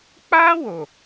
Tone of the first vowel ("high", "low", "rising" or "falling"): high